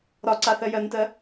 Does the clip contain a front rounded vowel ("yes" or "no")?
no